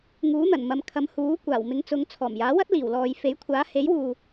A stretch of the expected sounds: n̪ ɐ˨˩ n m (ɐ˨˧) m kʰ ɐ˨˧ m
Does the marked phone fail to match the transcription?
no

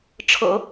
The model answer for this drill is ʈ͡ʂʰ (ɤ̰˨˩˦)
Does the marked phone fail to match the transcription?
no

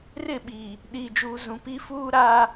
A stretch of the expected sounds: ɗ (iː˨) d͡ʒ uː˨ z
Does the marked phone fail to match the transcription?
no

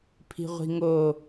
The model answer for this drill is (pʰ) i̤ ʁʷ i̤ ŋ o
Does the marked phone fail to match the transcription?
no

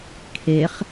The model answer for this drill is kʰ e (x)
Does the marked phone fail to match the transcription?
yes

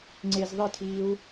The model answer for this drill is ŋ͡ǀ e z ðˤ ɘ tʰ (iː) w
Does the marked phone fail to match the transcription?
no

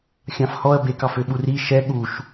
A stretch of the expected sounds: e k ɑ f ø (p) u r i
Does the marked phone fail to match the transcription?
yes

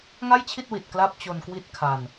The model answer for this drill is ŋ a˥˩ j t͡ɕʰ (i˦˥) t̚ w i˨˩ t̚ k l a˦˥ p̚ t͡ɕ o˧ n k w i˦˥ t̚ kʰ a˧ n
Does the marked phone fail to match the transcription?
yes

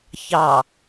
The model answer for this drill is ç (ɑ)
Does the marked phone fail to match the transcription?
no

